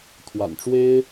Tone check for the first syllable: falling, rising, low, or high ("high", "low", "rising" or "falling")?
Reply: low